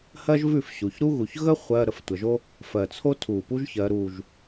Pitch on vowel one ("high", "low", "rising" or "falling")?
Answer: high